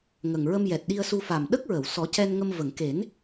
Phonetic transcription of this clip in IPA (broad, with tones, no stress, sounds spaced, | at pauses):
ŋ ə˨˩ ŋ ɹ ə˧ m j ɛ˨˩ t̚ ɗ i˧ ə̯ s u˧ f a˨˩ m ɗ ə˦˥ k̚ ɹ ə˨˩˨ w s ɔ˨˩˦ c ɛ˧ n ŋ ə˧ m v ə˨˩˨ ŋ k e˨˩˦ n